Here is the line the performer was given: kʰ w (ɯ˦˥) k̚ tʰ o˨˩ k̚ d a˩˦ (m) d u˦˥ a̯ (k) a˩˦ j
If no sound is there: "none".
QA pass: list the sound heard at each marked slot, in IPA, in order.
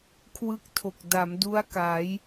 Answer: ɯ˦˥, m, k

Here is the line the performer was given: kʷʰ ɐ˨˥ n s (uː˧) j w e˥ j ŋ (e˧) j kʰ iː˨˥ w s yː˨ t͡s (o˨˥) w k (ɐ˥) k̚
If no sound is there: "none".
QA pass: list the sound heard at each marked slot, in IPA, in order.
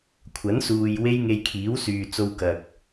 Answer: uː˨, e˧, o˧, ɐ˨

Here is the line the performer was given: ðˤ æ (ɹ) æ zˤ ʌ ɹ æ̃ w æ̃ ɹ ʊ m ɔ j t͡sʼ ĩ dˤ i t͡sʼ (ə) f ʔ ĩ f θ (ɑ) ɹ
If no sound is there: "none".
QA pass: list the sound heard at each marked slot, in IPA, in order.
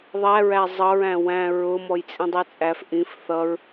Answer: ɹ, æ, ʌ

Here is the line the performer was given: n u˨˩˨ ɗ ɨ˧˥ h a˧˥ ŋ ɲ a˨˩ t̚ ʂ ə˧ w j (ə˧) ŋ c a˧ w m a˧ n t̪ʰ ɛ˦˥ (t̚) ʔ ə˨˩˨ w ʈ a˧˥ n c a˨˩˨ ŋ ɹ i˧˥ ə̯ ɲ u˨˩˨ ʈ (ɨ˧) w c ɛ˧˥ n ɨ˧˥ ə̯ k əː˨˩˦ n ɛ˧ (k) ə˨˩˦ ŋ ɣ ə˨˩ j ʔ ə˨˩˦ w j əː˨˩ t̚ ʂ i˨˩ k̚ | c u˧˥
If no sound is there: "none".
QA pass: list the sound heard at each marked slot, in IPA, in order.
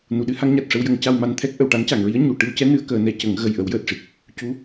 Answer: ə˨˩˦, k̚, ɨ˧, c

